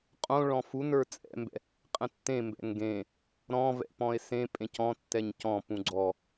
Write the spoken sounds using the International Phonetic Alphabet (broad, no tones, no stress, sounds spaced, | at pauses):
qʼ õ ɭ ɔ̃ f u n ə˞ t͡sʼ ɛ̰ m b ɛ̰ | qʼ ɛ̃ tː ẽ m b ɛ̰ ŋ ɡ ẽ | ɾ ɔ̃ v ɛ̰ p ɔ̃ e̯ s ẽ pʼ ẽ c ɔ̃ tː ɛ ɲ c ɔ̃ p ũ ɡ͡ǀ ɔ